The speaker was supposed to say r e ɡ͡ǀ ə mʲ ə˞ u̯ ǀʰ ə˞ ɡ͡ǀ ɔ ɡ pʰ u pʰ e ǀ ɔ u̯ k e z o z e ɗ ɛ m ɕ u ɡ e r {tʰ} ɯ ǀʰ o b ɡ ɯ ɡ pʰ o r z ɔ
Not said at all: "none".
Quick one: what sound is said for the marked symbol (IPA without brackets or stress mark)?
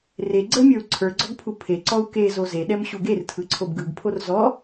tʰ